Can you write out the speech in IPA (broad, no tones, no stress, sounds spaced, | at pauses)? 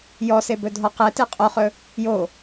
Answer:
j ɔ s e b ɵ dʱ ɔ q ɛ t e qʼ o χ ɵ | j o